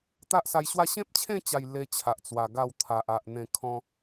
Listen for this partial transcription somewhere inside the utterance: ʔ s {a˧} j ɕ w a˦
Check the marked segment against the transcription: correct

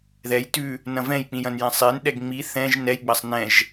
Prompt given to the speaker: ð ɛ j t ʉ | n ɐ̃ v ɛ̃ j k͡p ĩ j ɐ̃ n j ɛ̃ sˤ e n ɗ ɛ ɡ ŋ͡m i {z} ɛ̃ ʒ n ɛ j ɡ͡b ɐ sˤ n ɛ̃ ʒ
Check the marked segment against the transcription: incorrect: θ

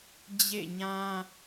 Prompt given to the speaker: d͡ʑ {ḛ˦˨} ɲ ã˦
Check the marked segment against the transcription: correct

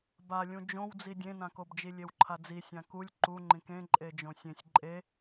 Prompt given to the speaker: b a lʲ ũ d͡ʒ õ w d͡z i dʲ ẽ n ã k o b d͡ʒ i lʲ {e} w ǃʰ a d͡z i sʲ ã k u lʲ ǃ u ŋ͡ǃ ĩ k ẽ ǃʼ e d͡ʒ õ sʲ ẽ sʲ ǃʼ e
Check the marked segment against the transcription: correct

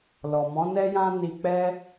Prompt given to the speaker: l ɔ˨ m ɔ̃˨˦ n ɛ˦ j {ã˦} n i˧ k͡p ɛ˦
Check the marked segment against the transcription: correct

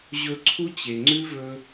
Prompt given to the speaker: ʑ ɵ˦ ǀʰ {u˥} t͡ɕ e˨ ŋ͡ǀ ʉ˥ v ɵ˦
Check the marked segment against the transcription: correct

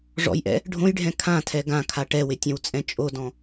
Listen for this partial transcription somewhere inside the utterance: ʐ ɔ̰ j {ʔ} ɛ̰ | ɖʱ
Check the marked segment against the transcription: correct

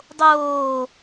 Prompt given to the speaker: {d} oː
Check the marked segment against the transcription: incorrect: dˤ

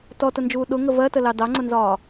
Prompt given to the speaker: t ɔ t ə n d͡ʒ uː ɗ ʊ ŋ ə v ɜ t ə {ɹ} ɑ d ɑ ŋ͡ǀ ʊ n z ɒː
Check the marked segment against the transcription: incorrect: l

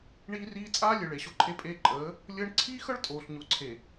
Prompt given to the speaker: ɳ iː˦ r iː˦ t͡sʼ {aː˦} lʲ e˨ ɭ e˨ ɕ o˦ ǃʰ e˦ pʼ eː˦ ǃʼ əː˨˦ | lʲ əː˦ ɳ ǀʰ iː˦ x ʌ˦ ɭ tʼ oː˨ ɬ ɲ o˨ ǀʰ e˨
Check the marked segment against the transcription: correct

